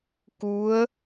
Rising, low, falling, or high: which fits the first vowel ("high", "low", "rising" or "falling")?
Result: rising